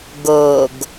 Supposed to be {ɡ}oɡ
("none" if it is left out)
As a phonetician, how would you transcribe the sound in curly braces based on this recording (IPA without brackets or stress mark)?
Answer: ɡ